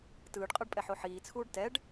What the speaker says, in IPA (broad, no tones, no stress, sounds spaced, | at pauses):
t ɯː ɖ qʼ ɤ ɖ pʼ ɛ ħ o ħ iː t͡sʰ uː ɖ t ɛ ɖ